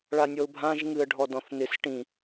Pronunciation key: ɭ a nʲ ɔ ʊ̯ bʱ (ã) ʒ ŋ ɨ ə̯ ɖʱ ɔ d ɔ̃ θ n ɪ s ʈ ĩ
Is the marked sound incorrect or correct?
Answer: correct